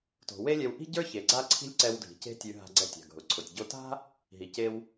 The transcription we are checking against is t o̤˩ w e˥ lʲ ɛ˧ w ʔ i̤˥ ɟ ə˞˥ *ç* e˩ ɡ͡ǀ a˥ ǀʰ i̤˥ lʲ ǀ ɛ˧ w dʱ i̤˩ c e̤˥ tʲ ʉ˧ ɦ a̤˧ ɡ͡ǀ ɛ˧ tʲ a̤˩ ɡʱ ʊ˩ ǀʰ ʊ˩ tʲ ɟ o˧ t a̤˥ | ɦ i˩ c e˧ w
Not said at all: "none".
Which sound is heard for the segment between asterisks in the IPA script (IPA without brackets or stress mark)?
ç